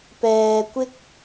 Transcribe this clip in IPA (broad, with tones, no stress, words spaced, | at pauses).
pɛː˧kʷɪ˥k̚